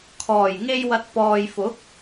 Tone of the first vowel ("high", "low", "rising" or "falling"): low